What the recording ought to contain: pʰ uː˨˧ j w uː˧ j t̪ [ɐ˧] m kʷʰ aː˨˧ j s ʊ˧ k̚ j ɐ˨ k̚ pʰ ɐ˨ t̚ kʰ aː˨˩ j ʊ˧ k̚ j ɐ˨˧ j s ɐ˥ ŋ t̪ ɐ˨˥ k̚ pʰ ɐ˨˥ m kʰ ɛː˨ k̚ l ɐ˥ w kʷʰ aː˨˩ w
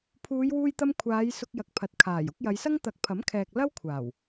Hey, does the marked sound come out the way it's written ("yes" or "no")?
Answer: yes